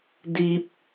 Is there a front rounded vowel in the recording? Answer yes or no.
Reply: no